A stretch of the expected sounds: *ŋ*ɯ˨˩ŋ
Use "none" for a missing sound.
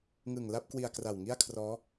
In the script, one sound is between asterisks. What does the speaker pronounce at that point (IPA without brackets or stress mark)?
ŋ